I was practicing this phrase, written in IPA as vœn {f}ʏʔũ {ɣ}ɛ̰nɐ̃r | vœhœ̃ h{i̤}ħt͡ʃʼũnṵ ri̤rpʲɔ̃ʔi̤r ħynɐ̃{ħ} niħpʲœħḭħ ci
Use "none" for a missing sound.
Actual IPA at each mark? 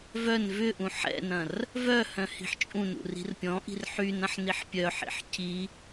v, ħ, i̤, ħ

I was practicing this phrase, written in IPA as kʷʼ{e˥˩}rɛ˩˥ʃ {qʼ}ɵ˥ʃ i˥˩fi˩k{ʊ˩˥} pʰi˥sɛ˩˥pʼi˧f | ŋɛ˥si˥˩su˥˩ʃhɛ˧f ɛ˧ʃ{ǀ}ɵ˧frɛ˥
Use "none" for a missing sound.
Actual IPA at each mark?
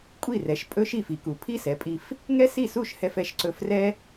i˥˩, pʼ, u˩˥, ǀ

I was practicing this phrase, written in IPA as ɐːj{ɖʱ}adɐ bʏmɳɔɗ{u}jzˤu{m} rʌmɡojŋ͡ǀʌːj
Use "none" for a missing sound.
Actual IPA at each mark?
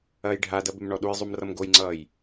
ɖʱ, u, m

